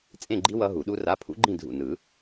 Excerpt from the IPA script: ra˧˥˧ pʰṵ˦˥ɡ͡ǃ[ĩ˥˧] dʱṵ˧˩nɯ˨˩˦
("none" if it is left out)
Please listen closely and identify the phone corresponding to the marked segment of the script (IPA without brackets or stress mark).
ĩ˥˧